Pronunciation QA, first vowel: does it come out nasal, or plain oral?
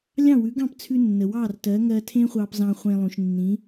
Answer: nasal